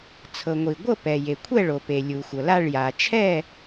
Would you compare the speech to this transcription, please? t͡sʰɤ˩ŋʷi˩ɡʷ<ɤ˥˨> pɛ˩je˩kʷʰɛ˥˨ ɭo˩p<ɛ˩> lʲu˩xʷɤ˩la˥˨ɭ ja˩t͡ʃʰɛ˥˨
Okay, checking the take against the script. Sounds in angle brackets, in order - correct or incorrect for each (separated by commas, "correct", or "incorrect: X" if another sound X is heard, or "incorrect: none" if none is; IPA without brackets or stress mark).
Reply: correct, incorrect: e˩